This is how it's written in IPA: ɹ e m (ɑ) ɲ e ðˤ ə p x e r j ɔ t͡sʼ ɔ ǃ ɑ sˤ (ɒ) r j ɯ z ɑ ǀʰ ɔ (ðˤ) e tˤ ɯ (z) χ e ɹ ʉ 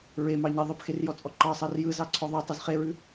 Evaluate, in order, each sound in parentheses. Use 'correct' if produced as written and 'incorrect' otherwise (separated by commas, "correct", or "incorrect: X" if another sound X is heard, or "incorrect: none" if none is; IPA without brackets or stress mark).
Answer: correct, incorrect: ɑ, correct, correct